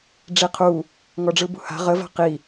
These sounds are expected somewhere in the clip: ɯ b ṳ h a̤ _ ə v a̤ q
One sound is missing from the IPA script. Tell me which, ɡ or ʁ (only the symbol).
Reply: ʁ